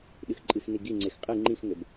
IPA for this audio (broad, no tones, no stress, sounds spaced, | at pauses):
ɗ ɨ x ǃʼ ɨ x n i ɡ i ŋ͡ǀ e x qʼ ɨ ŋ͡ǃ ĩ x ŋ ɘ b